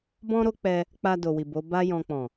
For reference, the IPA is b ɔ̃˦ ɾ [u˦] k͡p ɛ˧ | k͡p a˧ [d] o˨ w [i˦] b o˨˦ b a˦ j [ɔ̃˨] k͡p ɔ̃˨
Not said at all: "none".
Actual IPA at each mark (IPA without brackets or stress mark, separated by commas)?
o˦, d, i˨, ɔ̃˧